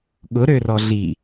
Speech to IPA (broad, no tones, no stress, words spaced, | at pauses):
ɠʊɾørɔ ɮi